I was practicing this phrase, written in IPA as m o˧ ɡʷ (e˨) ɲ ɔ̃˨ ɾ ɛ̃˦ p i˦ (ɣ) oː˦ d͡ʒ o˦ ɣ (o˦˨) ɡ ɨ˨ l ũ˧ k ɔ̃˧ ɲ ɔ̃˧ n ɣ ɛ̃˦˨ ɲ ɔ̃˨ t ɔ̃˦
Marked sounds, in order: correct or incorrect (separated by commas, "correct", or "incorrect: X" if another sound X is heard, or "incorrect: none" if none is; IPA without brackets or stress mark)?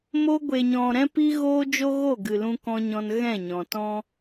correct, correct, correct